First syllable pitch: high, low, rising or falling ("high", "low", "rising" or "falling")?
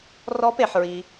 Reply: rising